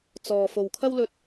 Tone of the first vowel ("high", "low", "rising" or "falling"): low